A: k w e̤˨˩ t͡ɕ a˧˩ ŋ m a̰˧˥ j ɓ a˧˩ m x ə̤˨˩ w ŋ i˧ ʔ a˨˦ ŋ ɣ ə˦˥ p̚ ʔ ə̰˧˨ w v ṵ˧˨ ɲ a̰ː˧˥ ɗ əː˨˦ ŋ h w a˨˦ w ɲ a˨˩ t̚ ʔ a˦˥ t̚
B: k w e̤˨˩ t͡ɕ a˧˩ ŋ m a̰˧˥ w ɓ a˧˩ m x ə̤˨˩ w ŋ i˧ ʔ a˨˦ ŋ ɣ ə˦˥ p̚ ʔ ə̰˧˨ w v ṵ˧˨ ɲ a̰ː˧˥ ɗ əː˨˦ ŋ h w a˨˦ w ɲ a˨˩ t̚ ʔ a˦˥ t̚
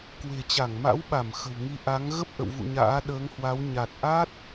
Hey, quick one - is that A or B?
B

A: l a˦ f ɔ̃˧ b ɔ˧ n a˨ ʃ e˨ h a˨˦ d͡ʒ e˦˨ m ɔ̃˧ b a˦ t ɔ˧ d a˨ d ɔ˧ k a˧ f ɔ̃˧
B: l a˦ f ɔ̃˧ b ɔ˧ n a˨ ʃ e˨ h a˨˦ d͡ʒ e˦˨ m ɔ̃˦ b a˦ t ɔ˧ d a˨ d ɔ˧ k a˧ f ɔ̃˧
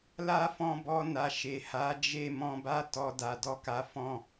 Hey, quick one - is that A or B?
A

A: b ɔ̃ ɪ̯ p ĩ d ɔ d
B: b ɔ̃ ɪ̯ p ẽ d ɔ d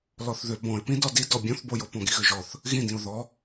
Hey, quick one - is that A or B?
A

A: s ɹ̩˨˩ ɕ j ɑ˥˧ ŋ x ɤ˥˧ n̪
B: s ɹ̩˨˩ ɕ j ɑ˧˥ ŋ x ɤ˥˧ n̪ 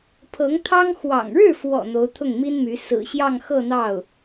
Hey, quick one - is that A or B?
A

